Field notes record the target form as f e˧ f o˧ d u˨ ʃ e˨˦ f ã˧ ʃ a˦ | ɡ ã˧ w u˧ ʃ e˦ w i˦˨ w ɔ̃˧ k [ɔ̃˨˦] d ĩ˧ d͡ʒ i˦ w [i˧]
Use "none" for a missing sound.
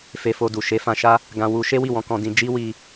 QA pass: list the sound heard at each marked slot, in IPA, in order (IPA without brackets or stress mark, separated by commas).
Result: ɔ̃˧, i˧